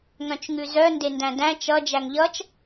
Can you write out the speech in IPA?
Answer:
ŋœ̃t͡ʃŋʉzœ ndendæ̃dæ̃ t͡ʃʌ d͡ʒæŋʎʌt͡ʃ

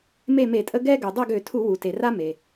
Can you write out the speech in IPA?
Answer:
me˦˨me˧˩˧tʼə˦ ɡɛ˦ ɡø˩ dˤɛ˦˨ɡø˧˩˧tʰu˧˩˧ wu˩te˩ra˦ me˩

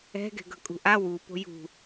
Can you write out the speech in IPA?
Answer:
ɛ̤ɡɛ̤ ɡʌkʼṳʔa wu po̤jṳ

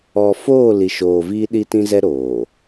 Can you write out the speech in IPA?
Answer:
ɔ˨foː˦˨ li˨ʃoː˨ viː˦ɗi˦tĩ˦zɛ˦ ɾoː˨

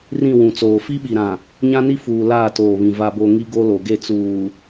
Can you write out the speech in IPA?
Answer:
rĩ˦˨wũ˨t͡soː˨ fi˦ɓi˨ɾã˨ | ɲã˦ni˦ fuː˨ laː˦˨toː˨βĩ˨ va˦bo˦ ŋi˦ɡo˦lo˨ɡe˦˨ t͡suː˨

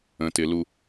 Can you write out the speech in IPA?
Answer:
ə̃tɪlu

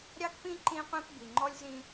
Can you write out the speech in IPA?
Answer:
ɾʲɑ˦kpĩ˦ ǃĩ˦qʷĩ˦p bi˨ŋ͡ǃɔ˦lʲzĩ˦

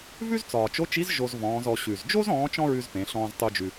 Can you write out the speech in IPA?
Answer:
vʉ˥zt͡sɒː˩t͡ʃo˧˥t͡ʃi˧˥z ʒo˧zvɔ̃ː˩˧zɔ˩˧ ɕʉ˩zd͡ʒo˥z ɔ̃ː˧˥t͡ʃɔ̃˥ɹʉ˧z pẽ˩˧ɬɔ̃ː˧z tˤu˧d͡ʒʉ˩

